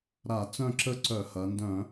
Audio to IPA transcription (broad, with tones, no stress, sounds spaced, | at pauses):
ɾ a˧˩˧ t͡s œ̃˥˨ ǁ ə˥˨ ǀ œ˧˩˧ h ɐ˩˧ n d œ̃˧˩˧